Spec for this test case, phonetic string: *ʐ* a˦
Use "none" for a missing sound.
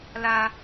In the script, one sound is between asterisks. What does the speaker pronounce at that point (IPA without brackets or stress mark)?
l